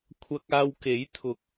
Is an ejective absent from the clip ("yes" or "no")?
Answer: yes